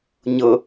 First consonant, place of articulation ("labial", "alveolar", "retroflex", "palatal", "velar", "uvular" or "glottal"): palatal